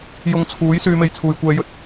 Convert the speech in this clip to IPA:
j ʊ˧ ŋ t͡sʰ uː˨˥ j s yː˧ m e˧ j t͡sʰ uː˨ j kʷ ɛː˧ j ɵ˧ t̚

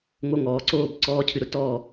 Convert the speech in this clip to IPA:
ŋ o˧˥ ŋ ɔː˩˧ ǀ oː˥˨ b ǀ ɔː˧˥ cʰ ɨ˧ ɾ ʊ˧ t ɔː˥˨

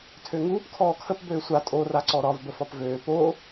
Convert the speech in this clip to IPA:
tʰ ø ŋ uː p kʰ ɔː kʰ ə p b øː sʷ a tʼ o r a ǀ ɔ ɾ ɒ v b ə f ɒ p v øː p o

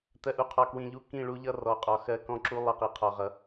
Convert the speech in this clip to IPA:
t ɜ˨ ʔ u˨ qʰ ɔ˨ k w ĩ˨ ʎ u˦ k ĩ˦˨ ɭ u˦ ʎ ʌ˦ r ɔ˨ qʼ ɒ˨ x ɜ˦ k ɔ̃˦ ǁ u˦ lˠ ʌ˦ q i˨ qʰ ɒ˦ ʁ ʌ˦

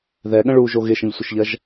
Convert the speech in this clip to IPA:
ð ɛ ɠ ə̃ ɭ u ʒ o ɣ ɪ ʃ ə̃ ʎ sʷ ə ʃ ʎ ɐ ʒ

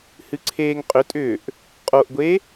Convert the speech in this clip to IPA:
h ɨ ǀʰ eː ŋ qʼ ʏ tʼ ʏː ʔ | qʼ o ʔ ɡʷ e

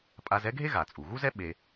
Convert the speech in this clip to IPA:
pʼ a˧ z ɛ˥ ɡʱ e˥ ɣ a˩ t͡sʼ u˩ ɣ u˥ z ɛ˥ ɓ e˧

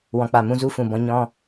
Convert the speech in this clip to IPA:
w ɔ̃˨ k͡p a˨ m ũ˦ z u˦ f ũ˨ b ɔ̃˧ ɲ ɔ̃˧

